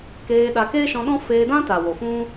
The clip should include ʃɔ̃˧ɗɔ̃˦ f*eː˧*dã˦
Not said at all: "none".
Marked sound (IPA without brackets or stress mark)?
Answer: eː˧